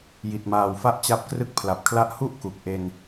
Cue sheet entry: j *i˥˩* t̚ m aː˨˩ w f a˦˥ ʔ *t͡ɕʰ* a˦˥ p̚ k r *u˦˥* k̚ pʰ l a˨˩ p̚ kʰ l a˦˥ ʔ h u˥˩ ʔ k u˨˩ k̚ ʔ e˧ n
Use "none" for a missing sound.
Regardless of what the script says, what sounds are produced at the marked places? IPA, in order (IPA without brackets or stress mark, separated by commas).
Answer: i˨˩, t͡ɕ, ɯ˦˥